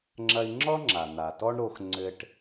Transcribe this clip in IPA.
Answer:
ŋ͡ǁ ɐ˧ i̯ ŋ͡ǁ ɔ˥ ŋ͡ǁ a˩ n̪ a˩ t ɔ˥ ɳ ɾ o˧ x ŋ͡ǀ ɘ˧ ʈ

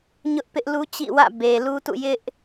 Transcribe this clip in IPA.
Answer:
ɲ ʊ˦ ʔ p ɪ˦ ʔ l u˦ t͡ɕ ḭ˦˨ w ä̰˦˨ b e˨ l u˦ t ṵ˦˨ j ɪ˦ ʔ

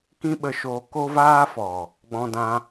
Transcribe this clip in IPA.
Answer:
k ĩ˦ ɓ ə˧ ʃ oː˧ k o˦ v aː˦ f ɔ˨ | ɡ͡b ɔ̃˧ d ã˧

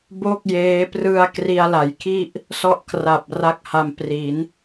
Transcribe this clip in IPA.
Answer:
b o˥˩ k̚ j eː˦˥ p r ɯ˧ a̯ k r i˧ a̯ l a˩˦ j kʰ i˥˩ ʔ | s ɔ˥˩ ʔ kʰ r a˨˩ p̚ r a˥˩ k̚ h a˧ m p r i˩˦ n

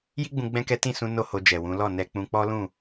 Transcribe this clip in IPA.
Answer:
j i˦ ɡ͡b ũ˧ ɡ͡b ɛ̃˦ k ɛ˦ t ĩ˦˨ s ũ˧ n o˦ h o˧ d͡ʒ ɛ˨ w ũ˨˦ l ɔ˦˨ n ɛ˧ k͡p ũ˧ k͡p ɔ˦ l ũ˦˨

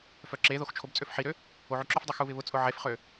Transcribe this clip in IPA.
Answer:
f œ ǁ e ð o x t͡ʃʰ o b t͡sʼ ø f ħ i ɾ ø | o ʕ y ǁ ʏ f dˤ u x u β ɪ β ʊ t͡sʼ ʊ ʕ e f χ ø

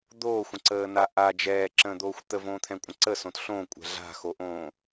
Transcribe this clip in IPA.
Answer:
d̪ oː xʷ ə̃ ǀ əː n a ʔ a d͡ʒ ɛː ǁ ə̃ː d̪ oː xʷ t̪ ə v õː t̪ʰ ɛ̃ kʷʼ ə̃ ǀ ə s õ t ɬ õ kʷʼ ɛ̤ ɮ a̤ x o ʔ õː

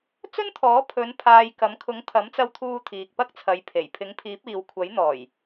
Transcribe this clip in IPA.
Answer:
t͡s ɵ˥ n t̪ʰ ɔː˨˥ pʰ ɵ˨˧ n pʰ aː˨ j k ɐ˨˥ m kʰ ʊ˨˥ ŋ t̪ʰ ɐ˨˥ m t͡s ɐ˧ w t̪ʰ uː˧ t̪ʰ iː˨ k̚ p ɐ˥ k̚ t͡sʰ ɐ˨˥ j pʰ e˨˩ j pʰ ɪ˨˥ ŋ pʰ iː˨˥ p̚ iː˨ w kʷʰ ɐ˨˥ j n̪ ɔː˨˩ j

